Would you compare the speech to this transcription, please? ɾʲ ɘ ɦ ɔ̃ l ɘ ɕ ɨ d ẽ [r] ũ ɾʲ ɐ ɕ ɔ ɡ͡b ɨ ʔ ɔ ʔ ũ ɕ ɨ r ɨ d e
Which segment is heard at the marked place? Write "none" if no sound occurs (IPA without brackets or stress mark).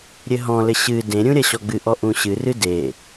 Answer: ɾʲ